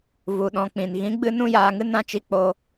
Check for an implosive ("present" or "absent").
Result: present